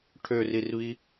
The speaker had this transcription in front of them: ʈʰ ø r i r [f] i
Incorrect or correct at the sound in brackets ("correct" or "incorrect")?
incorrect